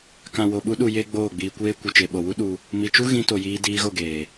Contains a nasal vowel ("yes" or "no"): yes